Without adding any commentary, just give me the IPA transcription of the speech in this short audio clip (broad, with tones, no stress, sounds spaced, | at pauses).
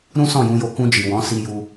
ɾ ũ˦ s ɔ̃˦˨ j ũ˧ j o˧ k ũ˧ d͡ʒ i˨ w ɔ̃˨˦ s i˧ j u˧